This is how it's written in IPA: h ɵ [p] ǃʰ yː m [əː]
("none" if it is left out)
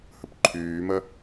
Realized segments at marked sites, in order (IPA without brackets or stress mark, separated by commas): p, ə